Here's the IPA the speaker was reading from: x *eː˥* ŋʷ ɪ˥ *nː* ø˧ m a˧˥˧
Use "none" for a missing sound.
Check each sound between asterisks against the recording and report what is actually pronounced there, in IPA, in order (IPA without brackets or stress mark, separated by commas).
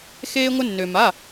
eː˥, nː